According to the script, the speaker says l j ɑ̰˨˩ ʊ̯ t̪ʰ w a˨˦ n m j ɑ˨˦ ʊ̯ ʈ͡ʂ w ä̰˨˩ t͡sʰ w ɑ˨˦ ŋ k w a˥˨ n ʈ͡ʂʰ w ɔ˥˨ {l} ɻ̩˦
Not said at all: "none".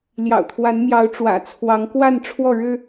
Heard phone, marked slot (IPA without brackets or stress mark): ɻ